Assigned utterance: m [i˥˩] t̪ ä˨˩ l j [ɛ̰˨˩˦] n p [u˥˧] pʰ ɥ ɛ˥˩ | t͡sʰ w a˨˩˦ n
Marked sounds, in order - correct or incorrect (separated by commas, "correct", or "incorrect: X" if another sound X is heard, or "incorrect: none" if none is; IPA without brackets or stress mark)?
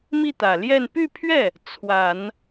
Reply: correct, incorrect: ɛ˥˧, incorrect: y˥˧